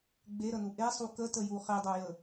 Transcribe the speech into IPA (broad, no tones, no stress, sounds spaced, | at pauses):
ɡ͡b e ɾ ə n u ʔ e sˤ u k ə t ə j u χ e dˤ o j ə